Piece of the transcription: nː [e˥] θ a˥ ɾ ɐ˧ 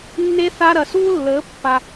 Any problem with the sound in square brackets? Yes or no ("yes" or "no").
no